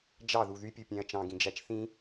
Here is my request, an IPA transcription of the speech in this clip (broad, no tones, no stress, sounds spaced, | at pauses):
d͡ʒ ɑ ð u ð y pʲ u pʲ æ̃ ɐ̯ t͡ʃ ɑ̃ ɡ ĩ d͡ʒ æ t͡ʃ θ ĩ